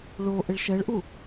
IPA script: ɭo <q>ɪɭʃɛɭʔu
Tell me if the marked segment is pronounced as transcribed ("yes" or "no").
no